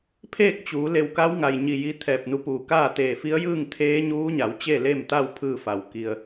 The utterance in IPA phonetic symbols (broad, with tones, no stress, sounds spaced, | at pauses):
pʰ eː˥˨ k̚ t͡ɕ uː˩˧ l e˧˩ w k a˧˥ w ŋ a˩ j ɲ i˧˩ j i˧ t̪ʰ ɛː˧˩ p̚ n u˧ p uː˩ k aː˥˨ t̪ eː˧˩ f i˧˥ ə̯ j ɯː˥˨ ŋ t̪ʰ eː˧˥ ɲ uː˧˥ ɲ a˩˧ w t͡ɕ e˥˨ l e˥˨ m t̪ a˥˨ w pʰ ɯː˥˨ f a˩ w k i˧ ə̯